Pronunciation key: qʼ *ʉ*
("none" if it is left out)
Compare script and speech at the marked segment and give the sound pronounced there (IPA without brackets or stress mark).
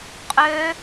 ø